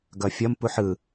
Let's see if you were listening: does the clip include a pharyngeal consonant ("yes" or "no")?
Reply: yes